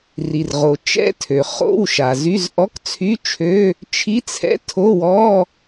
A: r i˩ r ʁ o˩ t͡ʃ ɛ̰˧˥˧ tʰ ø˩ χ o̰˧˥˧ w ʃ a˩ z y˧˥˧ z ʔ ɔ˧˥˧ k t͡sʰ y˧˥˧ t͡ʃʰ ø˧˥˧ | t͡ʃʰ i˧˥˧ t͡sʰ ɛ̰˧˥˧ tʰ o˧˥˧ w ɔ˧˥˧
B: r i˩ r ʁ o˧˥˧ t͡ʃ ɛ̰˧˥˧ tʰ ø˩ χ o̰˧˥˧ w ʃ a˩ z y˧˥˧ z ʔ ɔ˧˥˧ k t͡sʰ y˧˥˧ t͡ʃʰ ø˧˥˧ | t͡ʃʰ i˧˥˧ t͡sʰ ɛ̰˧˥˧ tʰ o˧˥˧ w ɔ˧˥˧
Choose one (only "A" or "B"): A